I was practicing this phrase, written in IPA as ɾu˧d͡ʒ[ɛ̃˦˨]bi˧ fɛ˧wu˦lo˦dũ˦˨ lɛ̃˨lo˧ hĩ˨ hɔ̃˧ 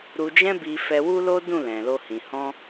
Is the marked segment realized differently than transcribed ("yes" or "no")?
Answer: yes